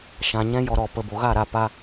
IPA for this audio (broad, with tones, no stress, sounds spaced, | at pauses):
ʃ ã˨ ɲ ɛ̃˦ j ɔ˧ ɾ ɔ˨ p ə˨ b o˨ ɣ a˦˨ ɾ a˧ p a˦